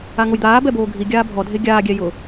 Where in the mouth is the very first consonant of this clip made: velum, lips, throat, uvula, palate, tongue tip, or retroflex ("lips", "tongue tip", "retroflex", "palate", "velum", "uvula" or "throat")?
velum